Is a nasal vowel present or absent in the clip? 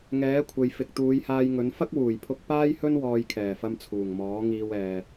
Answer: absent